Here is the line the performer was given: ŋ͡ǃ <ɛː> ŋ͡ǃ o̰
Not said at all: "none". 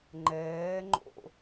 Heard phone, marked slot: ɛː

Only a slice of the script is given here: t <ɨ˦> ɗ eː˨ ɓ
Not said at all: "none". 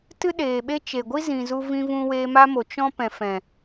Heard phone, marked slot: ɨ˦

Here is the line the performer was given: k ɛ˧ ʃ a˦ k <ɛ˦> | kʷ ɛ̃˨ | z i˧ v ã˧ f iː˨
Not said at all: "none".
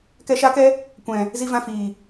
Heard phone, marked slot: ɛ˦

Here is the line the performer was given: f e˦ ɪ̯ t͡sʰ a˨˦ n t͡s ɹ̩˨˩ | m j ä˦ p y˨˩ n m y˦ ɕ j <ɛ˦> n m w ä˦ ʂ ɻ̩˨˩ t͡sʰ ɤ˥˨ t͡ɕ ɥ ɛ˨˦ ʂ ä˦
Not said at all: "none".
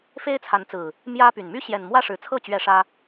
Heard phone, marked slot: ɛ˨˩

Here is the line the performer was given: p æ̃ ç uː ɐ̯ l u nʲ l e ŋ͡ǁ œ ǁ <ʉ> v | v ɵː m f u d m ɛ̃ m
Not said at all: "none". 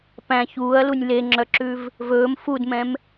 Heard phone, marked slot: ʉ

